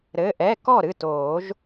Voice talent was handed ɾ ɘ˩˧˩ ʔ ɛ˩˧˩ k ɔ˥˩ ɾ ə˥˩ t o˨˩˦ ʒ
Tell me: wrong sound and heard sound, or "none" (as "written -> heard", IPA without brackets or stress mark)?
ə˥˩ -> ɨ˥˩